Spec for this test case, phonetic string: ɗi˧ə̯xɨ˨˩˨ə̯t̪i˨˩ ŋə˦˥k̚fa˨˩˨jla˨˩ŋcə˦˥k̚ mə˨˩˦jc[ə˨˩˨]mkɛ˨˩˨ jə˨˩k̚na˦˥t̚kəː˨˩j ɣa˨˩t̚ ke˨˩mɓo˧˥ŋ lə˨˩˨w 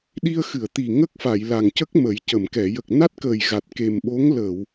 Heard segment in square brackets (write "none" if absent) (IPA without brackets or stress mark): ə˨˩˨